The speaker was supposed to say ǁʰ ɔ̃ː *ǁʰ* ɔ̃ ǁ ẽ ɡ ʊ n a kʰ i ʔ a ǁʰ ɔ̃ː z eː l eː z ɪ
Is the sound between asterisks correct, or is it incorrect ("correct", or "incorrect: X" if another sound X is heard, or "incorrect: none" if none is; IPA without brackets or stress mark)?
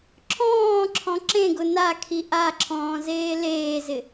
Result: correct